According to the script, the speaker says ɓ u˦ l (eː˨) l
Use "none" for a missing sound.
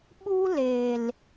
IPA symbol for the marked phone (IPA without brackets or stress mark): eː˨